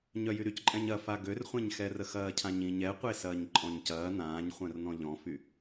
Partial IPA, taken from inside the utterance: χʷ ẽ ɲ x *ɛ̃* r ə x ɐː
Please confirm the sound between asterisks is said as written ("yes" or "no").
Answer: no